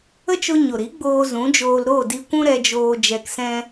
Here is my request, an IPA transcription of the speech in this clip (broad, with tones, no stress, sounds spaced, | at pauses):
ə˦ t͡ʃ o˧ ɲ o˨ ɾ i˨˦ ɡ͡b oː˧ z ũ˨˦ d͡ʒ oː˧ l ɾ o˦˨ d i˧ kʷ ũ˦ ɾ ɛ˧ d͡ʒ oː˧ d͡ʒ ɛ˧ k s ɛ̃˦